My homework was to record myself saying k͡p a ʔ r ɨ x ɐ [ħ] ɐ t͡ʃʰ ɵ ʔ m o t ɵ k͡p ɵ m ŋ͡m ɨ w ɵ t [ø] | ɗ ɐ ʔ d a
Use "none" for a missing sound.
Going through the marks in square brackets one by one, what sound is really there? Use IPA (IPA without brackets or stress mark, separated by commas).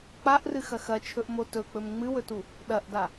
x, u